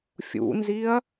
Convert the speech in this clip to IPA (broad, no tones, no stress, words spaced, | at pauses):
fʲṵnziɐ̯